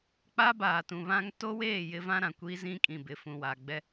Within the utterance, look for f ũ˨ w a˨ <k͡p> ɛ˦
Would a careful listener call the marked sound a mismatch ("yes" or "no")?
yes